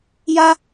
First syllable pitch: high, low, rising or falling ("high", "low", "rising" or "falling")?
high